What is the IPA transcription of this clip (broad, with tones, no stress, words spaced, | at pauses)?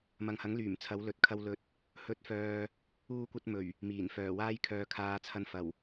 mɐ˨ŋhɐ˨˥ŋlyː˨˩m t͡sʰɐ˨˥wlɵ˨t̚kʰɐ˧w lɵ˨t̚ | hɵ˨˥t̚fœː˨ | uː˥kʷɐ˥t̚mɵ˨˩ɥ | miː˨˩n fœː˨˩ waː˥jkʰœː˨˧kʰaː˨t͡sʰɐ˧n fɐ˨˩w